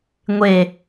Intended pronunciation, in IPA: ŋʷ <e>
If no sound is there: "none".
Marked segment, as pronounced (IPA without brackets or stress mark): e